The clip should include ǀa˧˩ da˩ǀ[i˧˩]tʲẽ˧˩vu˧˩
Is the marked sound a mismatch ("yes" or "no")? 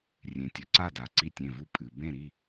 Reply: no